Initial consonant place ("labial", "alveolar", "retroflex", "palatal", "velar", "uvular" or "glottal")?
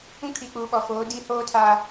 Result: velar